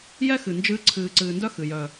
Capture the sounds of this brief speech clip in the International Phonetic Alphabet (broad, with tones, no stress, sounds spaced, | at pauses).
j ɛ˦ x ɨ˨ n d͡ʒ ɨː˦ ǀʰ ɨː˨ ǀ ɨː˨ n d œ˦ x ɨ˨ j œ˨